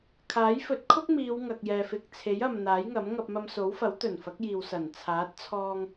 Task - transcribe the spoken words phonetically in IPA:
kʰ aː˨˥ j f ɵ˨˥ t̚ kʰ ʊ˥ k̚ m iː˨˧ w ŋ ɐ˨ k̚ j ɛː˨ f ɪ˨ k̚ t͡sʰ e˨˥ j ɐ˨ m n̪ aː˨˥ j ŋ ɐ˨˥ m ŋ ɐ˧ p̚ m ɐ˧ m s o˨˥ w f ɐ˨˥ w t̪ ɵ˨˩ n f ɐ˨˥ k̚ j iː˨ w s ɐ˨˩ n t͡sʰ aː˨˥ t̚ t͡sʰ ɔː˧ ŋ

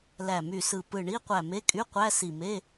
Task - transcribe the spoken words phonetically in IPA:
l æ˧˩ m y˧˩ s ɯ˧˩ p ɯ˧˩ ɳ i˧˥˧ qʷ æ˧˩ m e˧˥˧ kʼ y˧˥˧ qʷ æ˧˥˧ s i˧˩ m e˧˥˧

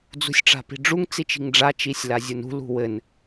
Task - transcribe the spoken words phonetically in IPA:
d͡z ṳ sʲ ʈ͡ʂ a̤ p i̤ ɖ͡ʐ u ŋ t͡s i t͡ʃ i̤ ŋ ɖ͡ʐ a t͡ʃ i sʲ l a zʲ u n ṳ l ṳ w ɘ n

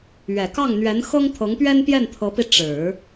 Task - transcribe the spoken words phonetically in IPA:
ɥ ɛ˨˩ k ɑ˥˩ ŋ n̪ ɥ ɛ˧˥ n x ɤ˥ ŋ t̪ʰ ɤ˧˥ ŋ p ɥ ɛ˥ n p j ɛ˥˩ n t̪ʰ ɤ˧˥ p i˧ ʈ͡ʂ ɻ̩˨˩˦

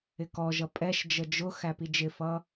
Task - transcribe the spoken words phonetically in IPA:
ɪ k ɔ ʒ ʌ pʼ ɛ ʃ d͡ʒ ə d͡ʒ ʊ x æ p i d͡ʒ ɪ f ʌ

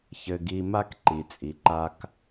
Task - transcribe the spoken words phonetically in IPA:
ç ɘ˧ ɡ i˧ m a˦ k ǃ i˨ t͡sʼ i˨ ǃ a˦ k

